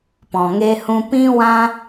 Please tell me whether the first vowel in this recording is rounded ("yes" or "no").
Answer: yes